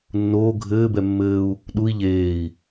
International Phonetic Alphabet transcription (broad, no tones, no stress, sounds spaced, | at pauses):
nː oː ɡʱ ɘː b ɛ mː ɘː u̯ | ɗ u i̯ ʎ eː i̯